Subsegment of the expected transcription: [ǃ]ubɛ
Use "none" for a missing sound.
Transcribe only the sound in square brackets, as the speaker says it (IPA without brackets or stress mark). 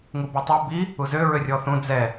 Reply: ŋ